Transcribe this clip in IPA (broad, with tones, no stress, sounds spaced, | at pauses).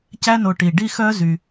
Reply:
c æ˦ n o˨ ʈ i˩ ɖ i˦ x œ˦ z y˩